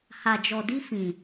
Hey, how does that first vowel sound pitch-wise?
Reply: low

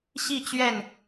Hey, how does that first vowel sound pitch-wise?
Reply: falling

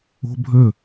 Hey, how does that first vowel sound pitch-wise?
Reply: high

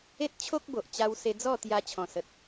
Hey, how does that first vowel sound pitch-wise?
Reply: high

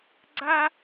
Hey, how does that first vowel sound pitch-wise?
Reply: high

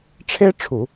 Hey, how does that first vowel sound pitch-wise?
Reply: high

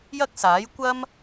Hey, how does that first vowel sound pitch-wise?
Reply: high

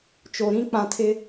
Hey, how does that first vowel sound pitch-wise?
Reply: low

